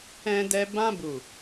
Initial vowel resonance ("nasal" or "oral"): nasal